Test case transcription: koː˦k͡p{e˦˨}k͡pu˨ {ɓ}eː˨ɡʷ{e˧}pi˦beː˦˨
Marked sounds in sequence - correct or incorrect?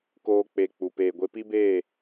incorrect: e˧, incorrect: p, correct

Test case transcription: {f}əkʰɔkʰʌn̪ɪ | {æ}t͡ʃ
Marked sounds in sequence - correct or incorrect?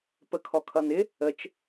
incorrect: p, incorrect: ə

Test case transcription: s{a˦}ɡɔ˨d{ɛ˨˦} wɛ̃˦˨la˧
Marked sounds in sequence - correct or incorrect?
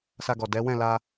incorrect: a˧, correct

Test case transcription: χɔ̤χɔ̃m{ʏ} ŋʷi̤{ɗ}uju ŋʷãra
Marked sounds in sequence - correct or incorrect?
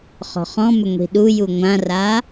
correct, correct

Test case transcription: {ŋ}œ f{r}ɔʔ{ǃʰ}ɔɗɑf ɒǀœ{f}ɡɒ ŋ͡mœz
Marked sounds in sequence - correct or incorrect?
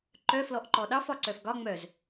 incorrect: ǃ, incorrect: l, incorrect: ǃ, correct

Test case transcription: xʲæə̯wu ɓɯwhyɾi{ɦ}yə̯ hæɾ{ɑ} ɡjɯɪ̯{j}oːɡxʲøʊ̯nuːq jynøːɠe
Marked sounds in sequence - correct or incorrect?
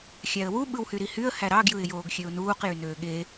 incorrect: h, correct, correct

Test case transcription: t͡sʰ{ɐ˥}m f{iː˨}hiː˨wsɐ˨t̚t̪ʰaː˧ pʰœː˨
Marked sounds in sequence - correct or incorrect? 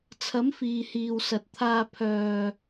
incorrect: ɐ˨˥, correct

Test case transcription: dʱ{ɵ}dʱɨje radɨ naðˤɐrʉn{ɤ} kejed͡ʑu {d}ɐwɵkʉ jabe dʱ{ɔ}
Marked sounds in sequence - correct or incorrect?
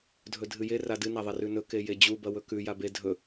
correct, incorrect: ɵ, incorrect: b, incorrect: ɵ

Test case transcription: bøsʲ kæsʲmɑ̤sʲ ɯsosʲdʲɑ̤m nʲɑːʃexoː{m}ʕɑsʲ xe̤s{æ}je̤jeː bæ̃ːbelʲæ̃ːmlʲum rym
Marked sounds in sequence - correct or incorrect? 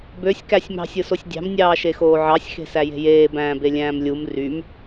incorrect: none, correct

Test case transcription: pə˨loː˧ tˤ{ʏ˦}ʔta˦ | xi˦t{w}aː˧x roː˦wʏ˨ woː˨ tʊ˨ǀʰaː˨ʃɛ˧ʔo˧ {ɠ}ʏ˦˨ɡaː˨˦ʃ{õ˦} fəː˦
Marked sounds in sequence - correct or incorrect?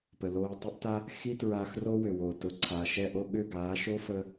incorrect: ə˦, incorrect: ɹ, correct, incorrect: o˦

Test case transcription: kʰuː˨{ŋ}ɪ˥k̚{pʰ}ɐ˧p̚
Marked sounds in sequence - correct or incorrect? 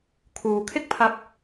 incorrect: kʰ, correct

